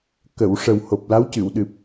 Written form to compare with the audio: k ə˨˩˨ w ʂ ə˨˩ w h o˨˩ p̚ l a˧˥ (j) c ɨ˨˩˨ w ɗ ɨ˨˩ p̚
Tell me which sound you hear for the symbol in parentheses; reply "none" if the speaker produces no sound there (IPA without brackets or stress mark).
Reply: w